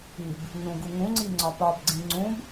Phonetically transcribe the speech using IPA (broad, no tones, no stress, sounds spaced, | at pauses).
i b | ɲ ũ ɡ u ŋ ũ ŋ͡ǀ i ŋ͡ǀ ɒ p ɒ b ɡ͡ǀ ĩ ŋ͡ǀ ũ b